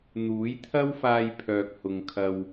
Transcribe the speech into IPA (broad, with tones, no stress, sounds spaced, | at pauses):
n̪ uː˨˥ j t̪ʰ ɐ˥ w f aː˧ j pʰ œː˨ k̚ h ʊ˨ ŋ kʰ ɐ˨ w